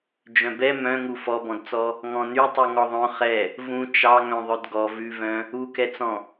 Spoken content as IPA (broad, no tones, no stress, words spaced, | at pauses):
d͡ʒœ̃bɛ mœ̃ŋu fɔbɔ̃dt͡sɔ | ŋɔ̃nytˤu ŋɔðˤœ̃ χɛ | vũ t͡ʃɑ ŋœ̃ðˤœdɡɔ vʉvœ̃ | ukɛt͡sɔ̃